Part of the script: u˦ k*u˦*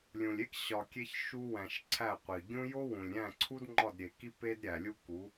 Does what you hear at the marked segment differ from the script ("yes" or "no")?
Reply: yes